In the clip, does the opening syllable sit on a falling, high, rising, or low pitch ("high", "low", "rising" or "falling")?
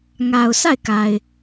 low